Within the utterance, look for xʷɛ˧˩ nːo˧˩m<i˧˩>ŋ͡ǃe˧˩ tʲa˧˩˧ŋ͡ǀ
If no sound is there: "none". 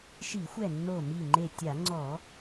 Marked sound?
i˧˩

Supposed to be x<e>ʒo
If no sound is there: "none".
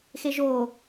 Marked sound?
e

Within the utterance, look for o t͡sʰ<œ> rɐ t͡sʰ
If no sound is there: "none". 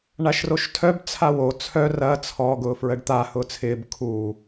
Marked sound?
œ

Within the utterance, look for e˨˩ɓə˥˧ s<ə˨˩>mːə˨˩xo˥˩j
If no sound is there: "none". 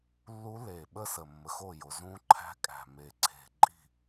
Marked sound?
ə˨˩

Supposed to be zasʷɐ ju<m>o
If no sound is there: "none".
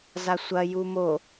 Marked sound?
m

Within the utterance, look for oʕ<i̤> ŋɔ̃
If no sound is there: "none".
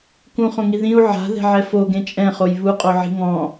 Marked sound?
i̤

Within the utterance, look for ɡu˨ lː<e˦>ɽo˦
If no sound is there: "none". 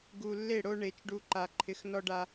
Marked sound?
e˦˨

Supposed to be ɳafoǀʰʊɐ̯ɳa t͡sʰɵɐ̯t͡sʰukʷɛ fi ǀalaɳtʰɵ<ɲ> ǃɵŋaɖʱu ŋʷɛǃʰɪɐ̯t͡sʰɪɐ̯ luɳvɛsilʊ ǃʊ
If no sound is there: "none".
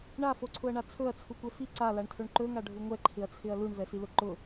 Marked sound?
ɳ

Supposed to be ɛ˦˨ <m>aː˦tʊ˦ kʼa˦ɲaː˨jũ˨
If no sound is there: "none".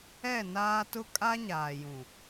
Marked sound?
n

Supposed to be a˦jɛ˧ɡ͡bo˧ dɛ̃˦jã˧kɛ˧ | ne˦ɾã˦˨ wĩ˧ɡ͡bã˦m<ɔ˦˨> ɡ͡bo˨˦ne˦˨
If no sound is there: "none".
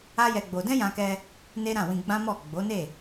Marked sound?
ɔ˦˨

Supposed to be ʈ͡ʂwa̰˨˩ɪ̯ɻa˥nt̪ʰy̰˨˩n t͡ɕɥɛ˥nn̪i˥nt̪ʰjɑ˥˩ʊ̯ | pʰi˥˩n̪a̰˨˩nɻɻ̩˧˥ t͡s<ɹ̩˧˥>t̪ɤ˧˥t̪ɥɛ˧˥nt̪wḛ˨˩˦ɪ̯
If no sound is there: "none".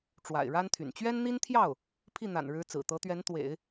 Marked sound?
ɹ̩˨˩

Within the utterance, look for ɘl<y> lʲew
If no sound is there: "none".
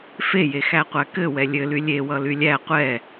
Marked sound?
y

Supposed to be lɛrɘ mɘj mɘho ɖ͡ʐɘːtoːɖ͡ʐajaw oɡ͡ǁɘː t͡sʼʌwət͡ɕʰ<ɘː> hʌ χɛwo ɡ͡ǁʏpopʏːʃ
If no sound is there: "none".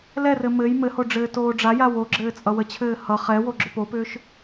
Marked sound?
ɘː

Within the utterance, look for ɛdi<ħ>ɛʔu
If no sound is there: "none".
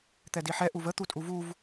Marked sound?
ħ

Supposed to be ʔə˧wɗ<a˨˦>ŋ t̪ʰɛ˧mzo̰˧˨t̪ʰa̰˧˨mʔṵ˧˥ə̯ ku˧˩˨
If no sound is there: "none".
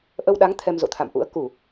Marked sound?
a˨˦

